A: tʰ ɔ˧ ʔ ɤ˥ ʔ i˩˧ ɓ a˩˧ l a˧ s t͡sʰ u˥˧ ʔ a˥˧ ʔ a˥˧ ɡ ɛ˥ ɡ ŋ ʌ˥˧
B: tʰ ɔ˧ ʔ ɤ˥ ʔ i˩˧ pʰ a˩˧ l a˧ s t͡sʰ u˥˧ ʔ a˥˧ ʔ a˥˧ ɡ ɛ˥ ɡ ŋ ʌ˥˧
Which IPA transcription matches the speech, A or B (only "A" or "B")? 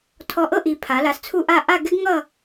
B